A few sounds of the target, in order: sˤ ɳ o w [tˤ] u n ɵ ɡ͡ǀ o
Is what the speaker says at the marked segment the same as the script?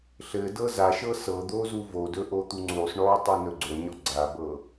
yes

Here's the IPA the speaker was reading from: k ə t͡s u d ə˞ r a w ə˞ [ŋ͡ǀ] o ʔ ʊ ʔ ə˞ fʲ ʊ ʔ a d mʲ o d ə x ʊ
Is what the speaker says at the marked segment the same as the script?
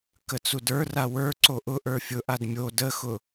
no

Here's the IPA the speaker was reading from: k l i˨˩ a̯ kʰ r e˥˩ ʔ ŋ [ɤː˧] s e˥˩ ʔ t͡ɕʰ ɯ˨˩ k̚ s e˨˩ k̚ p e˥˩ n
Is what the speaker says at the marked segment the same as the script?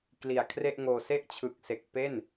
no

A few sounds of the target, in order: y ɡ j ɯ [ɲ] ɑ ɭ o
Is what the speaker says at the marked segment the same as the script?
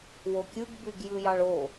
no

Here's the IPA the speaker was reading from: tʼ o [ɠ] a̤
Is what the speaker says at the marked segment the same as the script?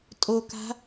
no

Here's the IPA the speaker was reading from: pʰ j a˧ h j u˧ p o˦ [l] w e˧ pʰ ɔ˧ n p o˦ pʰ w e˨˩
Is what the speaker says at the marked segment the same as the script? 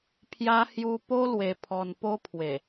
yes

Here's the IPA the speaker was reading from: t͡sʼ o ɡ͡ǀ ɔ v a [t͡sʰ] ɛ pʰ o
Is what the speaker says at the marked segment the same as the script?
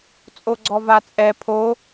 no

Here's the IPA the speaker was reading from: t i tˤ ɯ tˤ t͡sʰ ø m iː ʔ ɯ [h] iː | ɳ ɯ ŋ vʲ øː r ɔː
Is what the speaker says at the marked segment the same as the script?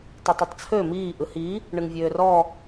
yes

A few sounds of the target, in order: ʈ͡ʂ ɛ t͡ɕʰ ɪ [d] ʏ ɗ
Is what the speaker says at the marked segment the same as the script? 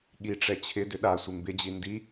yes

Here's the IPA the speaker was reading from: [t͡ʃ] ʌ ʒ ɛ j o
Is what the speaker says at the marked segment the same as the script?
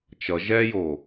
yes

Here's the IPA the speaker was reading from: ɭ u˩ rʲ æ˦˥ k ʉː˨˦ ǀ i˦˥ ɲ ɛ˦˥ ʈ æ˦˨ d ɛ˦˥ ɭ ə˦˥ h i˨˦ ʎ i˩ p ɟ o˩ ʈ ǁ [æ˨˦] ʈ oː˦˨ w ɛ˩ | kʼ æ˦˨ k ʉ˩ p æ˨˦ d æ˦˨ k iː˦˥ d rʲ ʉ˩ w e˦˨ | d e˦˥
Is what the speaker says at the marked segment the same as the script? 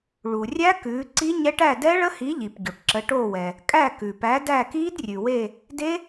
no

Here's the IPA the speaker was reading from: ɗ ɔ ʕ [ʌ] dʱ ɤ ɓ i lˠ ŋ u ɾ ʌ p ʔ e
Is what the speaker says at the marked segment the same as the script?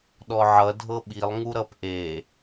yes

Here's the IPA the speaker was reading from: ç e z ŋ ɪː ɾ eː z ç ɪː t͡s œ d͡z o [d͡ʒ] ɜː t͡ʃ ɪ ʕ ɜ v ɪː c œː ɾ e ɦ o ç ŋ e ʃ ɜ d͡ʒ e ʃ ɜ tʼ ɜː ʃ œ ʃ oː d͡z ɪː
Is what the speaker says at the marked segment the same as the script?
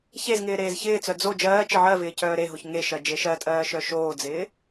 yes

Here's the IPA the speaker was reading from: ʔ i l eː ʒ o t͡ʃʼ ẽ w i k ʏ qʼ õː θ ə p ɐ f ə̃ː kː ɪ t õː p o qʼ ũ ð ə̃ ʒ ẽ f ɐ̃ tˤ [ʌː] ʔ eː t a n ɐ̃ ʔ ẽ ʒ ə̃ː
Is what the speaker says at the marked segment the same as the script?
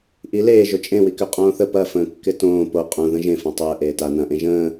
no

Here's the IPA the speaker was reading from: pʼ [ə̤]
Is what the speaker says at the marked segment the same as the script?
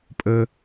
no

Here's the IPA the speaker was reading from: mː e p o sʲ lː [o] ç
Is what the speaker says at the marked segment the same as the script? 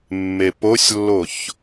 yes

